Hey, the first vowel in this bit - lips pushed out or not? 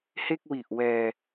no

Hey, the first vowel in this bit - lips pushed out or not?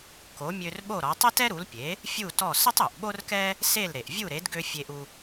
yes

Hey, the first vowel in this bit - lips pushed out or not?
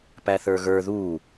no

